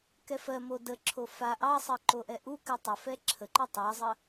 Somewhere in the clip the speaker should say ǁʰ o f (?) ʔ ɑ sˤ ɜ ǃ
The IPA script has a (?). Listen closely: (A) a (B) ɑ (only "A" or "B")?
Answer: A